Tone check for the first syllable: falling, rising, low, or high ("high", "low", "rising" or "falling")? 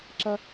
high